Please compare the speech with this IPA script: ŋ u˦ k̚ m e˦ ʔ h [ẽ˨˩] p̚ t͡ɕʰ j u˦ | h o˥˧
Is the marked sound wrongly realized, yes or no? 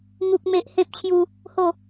yes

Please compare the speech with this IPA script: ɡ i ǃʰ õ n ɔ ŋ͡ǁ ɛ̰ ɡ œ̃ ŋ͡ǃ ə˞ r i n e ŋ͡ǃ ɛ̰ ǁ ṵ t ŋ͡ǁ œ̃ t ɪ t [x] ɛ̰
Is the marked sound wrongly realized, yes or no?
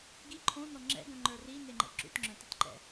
yes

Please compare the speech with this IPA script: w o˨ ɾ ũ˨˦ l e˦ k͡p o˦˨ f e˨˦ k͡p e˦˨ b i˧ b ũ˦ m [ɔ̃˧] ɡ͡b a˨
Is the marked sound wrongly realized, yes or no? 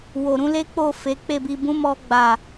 yes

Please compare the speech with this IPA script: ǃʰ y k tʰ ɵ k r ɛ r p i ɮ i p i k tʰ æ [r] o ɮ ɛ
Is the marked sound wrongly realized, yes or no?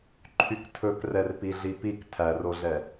no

